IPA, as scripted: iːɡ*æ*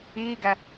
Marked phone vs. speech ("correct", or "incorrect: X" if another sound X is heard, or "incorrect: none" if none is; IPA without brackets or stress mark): correct